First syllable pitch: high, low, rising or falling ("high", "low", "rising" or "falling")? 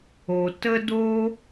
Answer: low